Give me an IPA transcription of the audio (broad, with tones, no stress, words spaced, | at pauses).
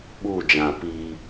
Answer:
ɓuː˦˨d͡ʒã˨ pi˦